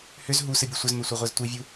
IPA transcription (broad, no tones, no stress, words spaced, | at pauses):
hʏz ɦu sɨbʲɨsʷɘzmɛ sʷɨʁʷɛztʷivʲu